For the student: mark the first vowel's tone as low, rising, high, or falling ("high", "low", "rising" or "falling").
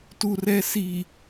low